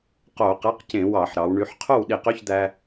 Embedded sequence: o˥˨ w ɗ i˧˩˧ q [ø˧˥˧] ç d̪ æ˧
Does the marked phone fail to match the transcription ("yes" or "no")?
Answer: no